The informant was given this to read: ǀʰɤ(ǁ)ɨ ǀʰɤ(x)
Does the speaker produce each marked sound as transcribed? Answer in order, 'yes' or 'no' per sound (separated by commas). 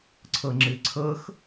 no, yes